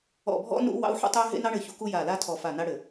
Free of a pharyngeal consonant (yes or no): no